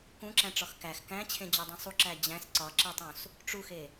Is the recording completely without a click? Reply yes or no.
no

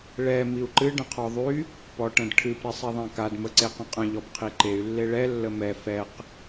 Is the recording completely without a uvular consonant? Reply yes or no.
no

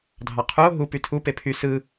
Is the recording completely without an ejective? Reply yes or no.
yes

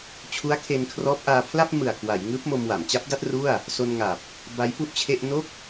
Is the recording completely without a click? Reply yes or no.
yes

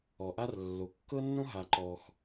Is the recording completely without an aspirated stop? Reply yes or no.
yes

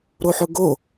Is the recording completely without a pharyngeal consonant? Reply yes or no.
no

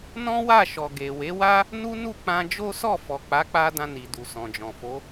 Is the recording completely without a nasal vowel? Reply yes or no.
no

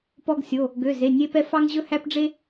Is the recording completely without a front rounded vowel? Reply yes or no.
no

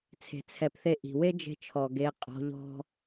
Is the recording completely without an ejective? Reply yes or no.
no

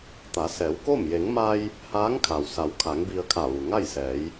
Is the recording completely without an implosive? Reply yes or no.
yes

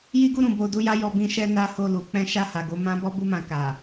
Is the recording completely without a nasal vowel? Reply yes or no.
no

